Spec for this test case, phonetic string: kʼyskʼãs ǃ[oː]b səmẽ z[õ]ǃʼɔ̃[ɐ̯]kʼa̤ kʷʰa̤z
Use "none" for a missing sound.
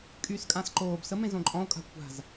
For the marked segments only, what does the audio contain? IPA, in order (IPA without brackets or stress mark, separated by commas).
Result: oː, õ, o̯